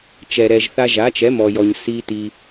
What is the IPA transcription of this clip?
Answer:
t͡ʃɛ˩ɾɛ˩ʒ θa˧ʒa˩˥t͡ʃɛ˩˥ mɔ˩jɔ˩ɲ si˦˥ti˧

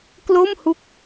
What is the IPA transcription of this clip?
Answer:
klo˥˩mhu˦˥k̚

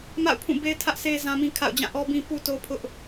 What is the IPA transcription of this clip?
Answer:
ma̰˦˨ʊ̯pʰũ˦˨be˦ɪ̯ tʰä˦ʔse˦zã˦mĩ˦ kʰa̰˦˨ʊ̯ d͡ʑã˦˨ʔɔ˦bĩ˦ pu˦to˦pʰʊ˦ʔ

